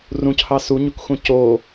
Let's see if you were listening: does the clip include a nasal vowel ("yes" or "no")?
yes